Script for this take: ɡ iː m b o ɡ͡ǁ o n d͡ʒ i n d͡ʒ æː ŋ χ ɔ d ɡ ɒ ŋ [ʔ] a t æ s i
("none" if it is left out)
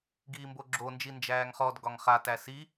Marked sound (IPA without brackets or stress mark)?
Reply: χ